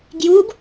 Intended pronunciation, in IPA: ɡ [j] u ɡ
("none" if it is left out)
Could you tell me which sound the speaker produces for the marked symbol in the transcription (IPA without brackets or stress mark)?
j